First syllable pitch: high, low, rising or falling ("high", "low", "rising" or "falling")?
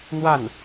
falling